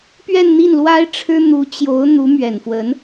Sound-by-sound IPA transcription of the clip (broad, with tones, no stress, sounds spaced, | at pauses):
p ɥ ɛ˥˧ n n̪ i˥˩ n l w a˥ ɪ̯ ʈ͡ʂʰ ɻ̩˥ n̪ u˧˥ t͡ɕ j o˧˥ ʊ̯ n̪ u˧˥ m ɥ ɛ˨˩ n f w ə˧˥ n